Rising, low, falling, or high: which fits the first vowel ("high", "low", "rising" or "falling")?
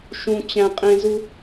high